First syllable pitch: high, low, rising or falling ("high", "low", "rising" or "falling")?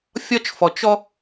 high